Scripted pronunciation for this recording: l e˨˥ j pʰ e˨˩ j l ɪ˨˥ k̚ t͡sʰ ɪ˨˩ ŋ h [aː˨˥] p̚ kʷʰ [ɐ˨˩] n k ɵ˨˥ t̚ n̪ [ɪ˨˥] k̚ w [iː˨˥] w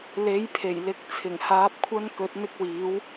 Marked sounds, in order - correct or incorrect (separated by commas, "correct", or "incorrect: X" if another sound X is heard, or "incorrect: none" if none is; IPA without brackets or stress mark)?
correct, incorrect: ɐ˥, incorrect: ɪ˥, correct